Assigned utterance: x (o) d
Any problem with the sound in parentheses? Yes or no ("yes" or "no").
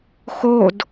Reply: no